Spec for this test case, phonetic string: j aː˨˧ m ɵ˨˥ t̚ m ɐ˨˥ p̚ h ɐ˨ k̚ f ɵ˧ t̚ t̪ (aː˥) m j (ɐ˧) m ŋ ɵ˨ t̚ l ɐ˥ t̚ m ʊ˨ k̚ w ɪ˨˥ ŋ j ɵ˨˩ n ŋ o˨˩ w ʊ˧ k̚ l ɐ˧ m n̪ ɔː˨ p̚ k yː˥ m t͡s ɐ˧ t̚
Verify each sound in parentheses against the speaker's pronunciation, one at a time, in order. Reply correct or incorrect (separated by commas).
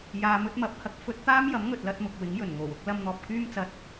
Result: correct, incorrect